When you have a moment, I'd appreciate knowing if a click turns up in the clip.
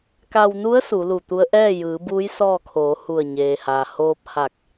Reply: no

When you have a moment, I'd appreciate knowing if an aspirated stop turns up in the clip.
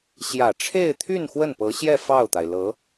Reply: yes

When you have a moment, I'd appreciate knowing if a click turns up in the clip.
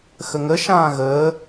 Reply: no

